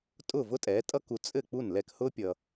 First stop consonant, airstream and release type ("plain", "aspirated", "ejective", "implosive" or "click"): ejective